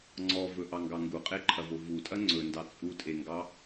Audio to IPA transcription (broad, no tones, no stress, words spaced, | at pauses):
ŋ͡ǀɔvɵʔɑŋɡɑ ŋɡuqʼeǃʰɐvo vutʼɐ ŋ͡ǀɵndɑ t͡sʼutʼeŋɡɑ